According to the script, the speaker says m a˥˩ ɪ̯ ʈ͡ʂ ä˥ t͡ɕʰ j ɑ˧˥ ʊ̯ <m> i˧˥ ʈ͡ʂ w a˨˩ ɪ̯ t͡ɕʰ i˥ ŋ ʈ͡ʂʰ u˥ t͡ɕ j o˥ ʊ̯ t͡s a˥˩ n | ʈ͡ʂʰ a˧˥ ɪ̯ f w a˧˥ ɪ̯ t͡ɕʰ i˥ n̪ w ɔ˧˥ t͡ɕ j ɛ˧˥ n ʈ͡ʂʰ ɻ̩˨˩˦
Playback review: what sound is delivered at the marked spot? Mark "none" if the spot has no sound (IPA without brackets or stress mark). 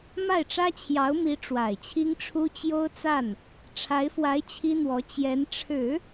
m